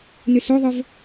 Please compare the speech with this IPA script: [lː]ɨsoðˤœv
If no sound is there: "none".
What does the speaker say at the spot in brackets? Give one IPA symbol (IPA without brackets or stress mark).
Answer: n